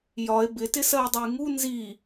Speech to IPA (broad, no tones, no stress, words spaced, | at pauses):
jɒe̯ bɪtɪsɜo̯dˤʊj ŋu nzi